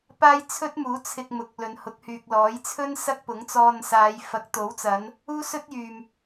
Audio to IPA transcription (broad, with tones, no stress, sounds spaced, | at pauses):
p aː˥ j t͡sʰ ɵ˥ t̚ m uː˨˥ t͡sʰ ɪ˧ k̚ m ʊ˨˥ k̚ l ɵ˨ n h ʊ˨˥ k̚ h yː˨ k̚ l ɔː˨˥ j t͡sʰ ɵ˥ n s ɐ˥ k̚ p ʊ˨˥ ŋ t͡s ɔː˧ n s aː˨˧ j f ɐ˨˥ k̚ t̪ o˨˥ w t͡s ɐ˨˧ n | uː˥ s ɵ˥ t̚ j yː˨ m